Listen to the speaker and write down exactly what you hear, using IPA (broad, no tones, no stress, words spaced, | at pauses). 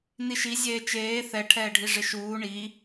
niʃi zʲeːt͡ʃeː θɛ ʈʰɛːɖʱiʐɪʃuː ɳi